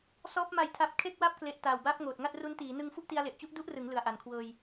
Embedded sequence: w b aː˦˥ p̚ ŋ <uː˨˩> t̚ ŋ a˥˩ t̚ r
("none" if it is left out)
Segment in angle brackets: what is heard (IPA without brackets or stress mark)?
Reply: oː˨˩